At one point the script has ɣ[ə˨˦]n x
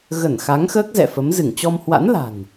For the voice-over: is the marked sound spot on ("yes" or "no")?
no